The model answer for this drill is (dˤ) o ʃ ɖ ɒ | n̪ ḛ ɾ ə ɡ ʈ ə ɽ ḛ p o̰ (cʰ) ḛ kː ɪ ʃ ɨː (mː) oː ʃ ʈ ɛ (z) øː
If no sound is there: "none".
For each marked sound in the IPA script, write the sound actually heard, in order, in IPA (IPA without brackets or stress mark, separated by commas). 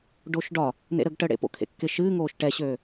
ɖ, kʰ, ŋ, ɕ